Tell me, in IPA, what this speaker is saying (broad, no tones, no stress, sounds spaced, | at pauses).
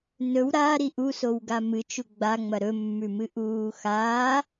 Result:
n ɵ w ɾ a ɾ i ʔ u s o w ɡ a m ɨ t͡ʃ u ɡ͡b a ŋ͡m ɐ ɾ ɵ mː ʉ m ɨ ʔ uː x aː